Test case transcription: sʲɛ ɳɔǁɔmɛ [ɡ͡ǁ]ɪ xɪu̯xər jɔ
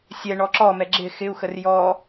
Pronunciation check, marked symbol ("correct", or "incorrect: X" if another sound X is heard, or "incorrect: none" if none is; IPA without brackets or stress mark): correct